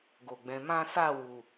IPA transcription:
ɡ o˨ ɡ͡b ɛ̃˨˦ m ã˦ s a˦˨ w u˨

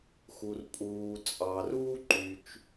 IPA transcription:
x u˩ r pʼ uː˩ t͡sʼ ɑ˩ r uː˥ ǃ y˩ t͡ʃ

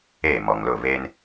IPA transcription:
eː˦˨ m ɔ˨ ŋ l ʊ˦˨ β e˦ n

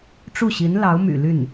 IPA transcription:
ʈ͡ʂ u˥˩ ɕ i˧˥ n l ɑ˧˥ ʊ̯ m y̰˨˩ l y˥˩ n

